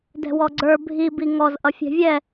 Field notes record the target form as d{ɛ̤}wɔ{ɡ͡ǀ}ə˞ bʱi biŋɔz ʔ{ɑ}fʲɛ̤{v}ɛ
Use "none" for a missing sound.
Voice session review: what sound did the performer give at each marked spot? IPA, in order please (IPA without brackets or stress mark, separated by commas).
ɛ̤, ɡ͡ǀ, ʌ, vʲ